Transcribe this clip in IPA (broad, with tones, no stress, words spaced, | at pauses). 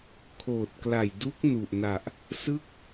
kʰoː˨˩t̚kla˨˩jdu˦˥k̚ nu˨˩ʔna˨˩ʔ | sɯ˥˩k̚